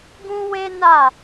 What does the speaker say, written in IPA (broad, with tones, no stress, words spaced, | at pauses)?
ɡũ˦we˦na˦˨